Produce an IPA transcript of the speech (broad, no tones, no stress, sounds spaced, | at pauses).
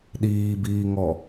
ɗ iː b iː ŋ ɔ